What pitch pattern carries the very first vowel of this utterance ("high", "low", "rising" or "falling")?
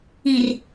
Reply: low